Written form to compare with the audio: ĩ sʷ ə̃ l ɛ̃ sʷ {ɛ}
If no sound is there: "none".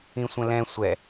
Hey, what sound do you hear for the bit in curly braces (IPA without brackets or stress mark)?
ɛ